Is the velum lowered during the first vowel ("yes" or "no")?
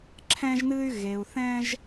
yes